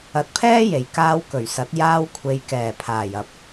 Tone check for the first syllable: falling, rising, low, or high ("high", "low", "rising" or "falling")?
low